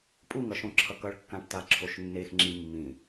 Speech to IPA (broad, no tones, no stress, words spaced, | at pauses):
pʼuŋʌ ʃõǁʰʌkʌɭkːãʈ taǁʰoʃnːexŋ͡ǁi mːĩ